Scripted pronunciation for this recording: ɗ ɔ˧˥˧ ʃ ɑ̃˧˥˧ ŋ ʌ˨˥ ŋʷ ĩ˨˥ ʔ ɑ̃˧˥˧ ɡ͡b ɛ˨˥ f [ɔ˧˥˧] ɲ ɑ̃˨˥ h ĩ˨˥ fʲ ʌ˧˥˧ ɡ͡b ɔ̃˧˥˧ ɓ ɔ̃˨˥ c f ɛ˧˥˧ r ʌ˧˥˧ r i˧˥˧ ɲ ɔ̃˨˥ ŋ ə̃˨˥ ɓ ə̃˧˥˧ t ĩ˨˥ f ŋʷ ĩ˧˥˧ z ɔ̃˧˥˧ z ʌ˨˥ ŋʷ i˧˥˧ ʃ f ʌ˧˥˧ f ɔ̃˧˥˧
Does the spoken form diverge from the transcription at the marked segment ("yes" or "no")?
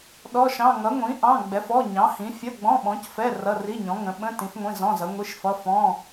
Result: no